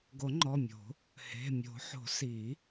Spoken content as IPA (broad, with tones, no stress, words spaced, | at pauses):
ɡo˨˩˦ŋ͡ǃɔ˩˧˩mʲo̤˨˩˦ | he̤˩˧˩ mʲo̤˨˩˦ħo̤˨˩˦ si˨˩˦